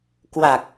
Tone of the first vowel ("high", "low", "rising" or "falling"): low